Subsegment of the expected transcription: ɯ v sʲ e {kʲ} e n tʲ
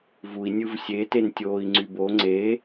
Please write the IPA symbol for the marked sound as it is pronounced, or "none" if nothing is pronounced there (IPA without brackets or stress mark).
t